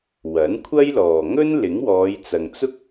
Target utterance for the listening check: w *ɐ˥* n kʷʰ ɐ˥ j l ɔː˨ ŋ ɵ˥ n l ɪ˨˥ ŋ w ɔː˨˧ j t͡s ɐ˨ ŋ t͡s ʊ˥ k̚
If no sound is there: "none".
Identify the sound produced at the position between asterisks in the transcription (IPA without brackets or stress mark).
ɐ˨˥